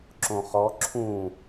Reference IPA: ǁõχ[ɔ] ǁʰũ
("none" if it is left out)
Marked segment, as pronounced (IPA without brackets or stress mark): ɔ